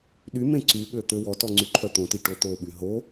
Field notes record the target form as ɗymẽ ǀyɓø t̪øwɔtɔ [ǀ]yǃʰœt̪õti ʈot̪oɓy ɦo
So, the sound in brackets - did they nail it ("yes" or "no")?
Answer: no